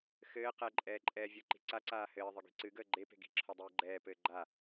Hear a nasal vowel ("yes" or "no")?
no